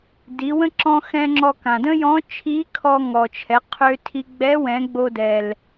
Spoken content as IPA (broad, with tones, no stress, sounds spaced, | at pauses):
d i˩˧ w ə̃˥ ǁ ɔ̃˧ x ɛ̃˧ ŋ͡ǁ ɔ˧ k ã˩ d ə̃˥ j ɔ̃˧˥ t͡ʃʰ i˧˥ kʰ ɔ˧ ŋ ɔ˩ t͡ʃʰ ɛ˩˧ qʰ ø˧ tʰ i˧ ɡ͡b ɛ˧˥ w ɛ̃˩˧ ɡ͡b o˧ d ɛ˩ l